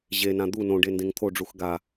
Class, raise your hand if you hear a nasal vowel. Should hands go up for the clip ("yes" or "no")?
yes